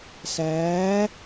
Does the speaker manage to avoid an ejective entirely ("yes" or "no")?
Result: yes